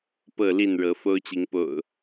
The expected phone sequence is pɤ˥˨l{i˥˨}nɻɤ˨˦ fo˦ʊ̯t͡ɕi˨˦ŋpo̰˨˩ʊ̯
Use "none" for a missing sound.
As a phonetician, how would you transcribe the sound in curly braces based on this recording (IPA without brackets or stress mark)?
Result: i˥˨